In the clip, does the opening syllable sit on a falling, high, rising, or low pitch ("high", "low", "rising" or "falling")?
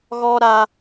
high